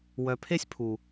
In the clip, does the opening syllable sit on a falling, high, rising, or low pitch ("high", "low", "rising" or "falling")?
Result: low